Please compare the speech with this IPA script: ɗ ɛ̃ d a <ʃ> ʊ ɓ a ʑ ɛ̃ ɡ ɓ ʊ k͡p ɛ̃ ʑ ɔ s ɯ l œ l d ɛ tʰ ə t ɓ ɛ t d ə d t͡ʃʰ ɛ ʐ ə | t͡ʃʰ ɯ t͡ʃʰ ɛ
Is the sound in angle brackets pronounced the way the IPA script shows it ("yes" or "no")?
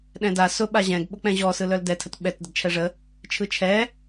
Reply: no